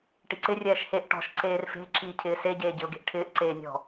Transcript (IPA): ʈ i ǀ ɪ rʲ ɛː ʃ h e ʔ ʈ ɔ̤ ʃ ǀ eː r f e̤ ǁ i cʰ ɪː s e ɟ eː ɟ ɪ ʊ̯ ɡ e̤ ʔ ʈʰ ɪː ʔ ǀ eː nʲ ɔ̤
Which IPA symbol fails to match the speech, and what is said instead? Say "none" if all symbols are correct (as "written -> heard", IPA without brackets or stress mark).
none